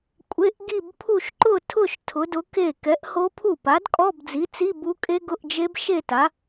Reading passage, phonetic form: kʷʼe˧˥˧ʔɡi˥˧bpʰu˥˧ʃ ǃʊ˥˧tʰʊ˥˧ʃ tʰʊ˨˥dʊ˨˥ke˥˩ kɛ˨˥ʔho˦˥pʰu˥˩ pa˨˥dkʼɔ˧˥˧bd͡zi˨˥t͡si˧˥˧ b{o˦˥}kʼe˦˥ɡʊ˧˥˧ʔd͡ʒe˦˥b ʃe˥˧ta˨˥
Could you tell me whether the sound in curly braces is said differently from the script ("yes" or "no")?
yes